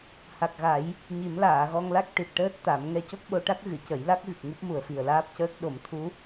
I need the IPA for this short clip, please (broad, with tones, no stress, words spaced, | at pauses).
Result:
ha˨˩k̚ɣa˨˩˦j | ɲi˨˩˦mlaː˨˩˨ɣɔ˧ŋla˦˥k̚ ʈi˨˩t̚ʈəː˦˥t̚ t̪a˨˩˦m ŋɛ˧co˦˥k̚ɓo˧ʈa˦˥k̚ ɣɨ˨˩˨cə˨˩˦jla˦˥k̚ɣɨ˨˩k̚ ŋu˦˥p̚mu˨˩ə̯fi˨˩ə̯laː˦˥p̚ cəː˦˥k̚ ɗo˨˩˦m t̪ʰu˧˥